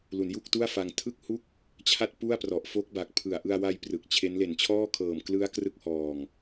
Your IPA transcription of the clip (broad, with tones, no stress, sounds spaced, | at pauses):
l u˩˦ n j u˥˩ k̚ t u˥˩ a̯ f a˧ ŋ tʰ ɯ˥˩ k̚ h u˥˩ k̚ | t͡ɕʰ a˥˩ t̚ p u˥˩ a̯ p r ɔ˨˩ ʔ f o˦˥ k̚ b a˨˩ k̚ pʰ ɯ˨˩ a̯ ʔ ɯ˧ a̯ w a˧ j p r ɯ˨˩ k̚ t͡ɕʰ e˦˥ n l e˨˩ n t͡ɕʰ ɔː˥˩ kʰ ɤː˨˩ m k l ɯ˦˥ a̯ k r ɯ˥˩ k̚ h ɔː˧ ŋ